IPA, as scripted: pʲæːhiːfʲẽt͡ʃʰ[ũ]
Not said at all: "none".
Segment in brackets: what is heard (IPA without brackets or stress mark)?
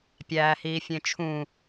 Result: ũ